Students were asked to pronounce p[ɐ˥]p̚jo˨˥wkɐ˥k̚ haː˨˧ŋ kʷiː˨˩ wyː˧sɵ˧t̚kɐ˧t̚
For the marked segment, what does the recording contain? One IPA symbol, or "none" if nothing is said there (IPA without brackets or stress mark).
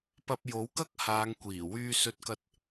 ɐ˧